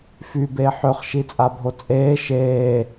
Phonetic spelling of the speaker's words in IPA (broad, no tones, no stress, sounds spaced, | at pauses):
f y b e ħ ø χ ʃ i t͡sʼ a bʱ o t͡sʼ eː ʃ eː